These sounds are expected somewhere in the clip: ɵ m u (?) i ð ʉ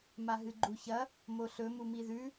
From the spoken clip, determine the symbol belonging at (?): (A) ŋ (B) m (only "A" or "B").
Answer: B